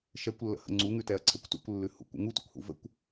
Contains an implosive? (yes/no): no